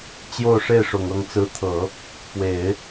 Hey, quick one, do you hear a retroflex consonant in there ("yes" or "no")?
yes